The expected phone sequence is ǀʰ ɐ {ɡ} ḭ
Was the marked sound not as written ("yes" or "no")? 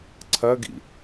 no